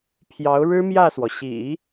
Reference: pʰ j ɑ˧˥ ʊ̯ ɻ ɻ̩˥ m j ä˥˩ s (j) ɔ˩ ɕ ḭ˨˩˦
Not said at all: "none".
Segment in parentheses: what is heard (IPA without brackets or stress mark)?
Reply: w